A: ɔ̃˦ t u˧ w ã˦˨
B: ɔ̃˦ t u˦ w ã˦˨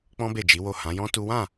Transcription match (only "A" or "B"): B